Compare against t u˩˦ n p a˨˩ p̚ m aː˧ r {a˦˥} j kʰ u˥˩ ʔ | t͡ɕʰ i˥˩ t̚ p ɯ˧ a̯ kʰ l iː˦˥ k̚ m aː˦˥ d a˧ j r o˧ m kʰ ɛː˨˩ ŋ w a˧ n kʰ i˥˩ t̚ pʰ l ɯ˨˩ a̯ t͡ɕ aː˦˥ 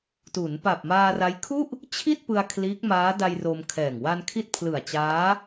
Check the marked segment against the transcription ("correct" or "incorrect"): correct